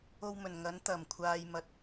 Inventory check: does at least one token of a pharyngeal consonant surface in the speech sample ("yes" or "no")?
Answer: no